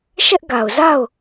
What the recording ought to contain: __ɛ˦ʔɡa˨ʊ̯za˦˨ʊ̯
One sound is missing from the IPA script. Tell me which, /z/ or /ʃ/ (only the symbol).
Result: ʃ